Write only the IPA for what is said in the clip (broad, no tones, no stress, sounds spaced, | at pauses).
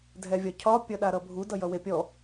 dʱ ɛ vʲ ɒ cʰ ɒ pʲ ʌ ɗ a ɾ ʌ bʱ u d ʌ j ʌ w e pʲ ɔ